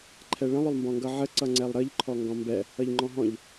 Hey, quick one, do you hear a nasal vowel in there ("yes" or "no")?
yes